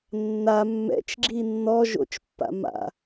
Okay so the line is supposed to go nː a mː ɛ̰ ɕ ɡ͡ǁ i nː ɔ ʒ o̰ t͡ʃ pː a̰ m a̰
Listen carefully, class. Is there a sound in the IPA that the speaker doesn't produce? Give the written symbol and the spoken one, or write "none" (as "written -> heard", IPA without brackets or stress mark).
ɕ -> t͡ʃ